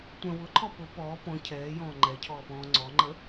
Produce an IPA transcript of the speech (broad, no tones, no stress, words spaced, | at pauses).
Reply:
tʷœ̃ wʊǃʰɔ pʊ pɔː pɔ̃ cʰɛːjɔ̃ː ŋ͡ǃɛcʰɔːpɔ̃ː ŋ͡ǀɔŋ͡ǃə